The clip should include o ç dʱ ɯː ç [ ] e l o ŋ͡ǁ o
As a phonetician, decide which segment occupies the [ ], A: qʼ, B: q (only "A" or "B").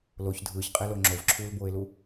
A